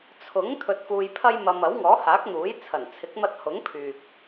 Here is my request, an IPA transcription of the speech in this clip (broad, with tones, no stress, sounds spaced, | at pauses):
t͡sʰ ʊ˨˥ ŋ t̪ʰ ɵ˧ t̚ f uː˧ j pʰ ɐ˥ j m ɐ˧ m ɐ˨˥ w ŋ ɔː˨˥ h aː˨˥ k̚ n̪ uː˨˥ j t͡sʰ ɐ˨˩ n t͡sʰ ɪ˨˥ k̚ m ɐ˧ t̚ h ʊ˨˥ ŋ pʰ yː˨ k̚